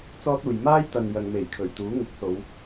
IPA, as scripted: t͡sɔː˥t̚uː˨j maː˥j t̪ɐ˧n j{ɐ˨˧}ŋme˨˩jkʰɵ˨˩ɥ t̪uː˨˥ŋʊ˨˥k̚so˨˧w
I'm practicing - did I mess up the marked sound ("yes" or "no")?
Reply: yes